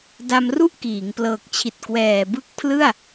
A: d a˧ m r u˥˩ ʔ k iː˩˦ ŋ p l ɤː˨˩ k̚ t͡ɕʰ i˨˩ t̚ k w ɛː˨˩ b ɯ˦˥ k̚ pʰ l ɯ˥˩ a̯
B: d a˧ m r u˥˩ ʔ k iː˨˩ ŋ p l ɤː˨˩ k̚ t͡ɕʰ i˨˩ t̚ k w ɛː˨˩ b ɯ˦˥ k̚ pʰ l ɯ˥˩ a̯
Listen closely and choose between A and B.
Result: A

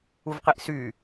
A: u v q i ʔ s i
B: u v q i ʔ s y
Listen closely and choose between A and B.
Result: B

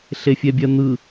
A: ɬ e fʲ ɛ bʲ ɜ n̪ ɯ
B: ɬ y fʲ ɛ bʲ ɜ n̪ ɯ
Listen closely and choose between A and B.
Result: A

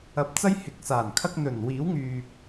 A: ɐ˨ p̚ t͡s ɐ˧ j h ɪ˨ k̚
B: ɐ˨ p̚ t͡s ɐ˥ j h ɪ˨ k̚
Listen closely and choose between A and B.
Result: A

